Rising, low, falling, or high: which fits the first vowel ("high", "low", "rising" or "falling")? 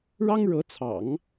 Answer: high